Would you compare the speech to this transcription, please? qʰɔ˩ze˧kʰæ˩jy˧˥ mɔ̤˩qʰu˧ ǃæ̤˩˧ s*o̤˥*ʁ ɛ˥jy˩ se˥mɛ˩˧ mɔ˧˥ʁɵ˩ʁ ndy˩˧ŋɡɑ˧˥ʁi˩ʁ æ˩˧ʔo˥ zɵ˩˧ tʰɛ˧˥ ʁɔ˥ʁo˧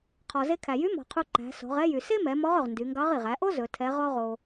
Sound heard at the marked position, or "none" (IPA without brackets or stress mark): o̤˩˧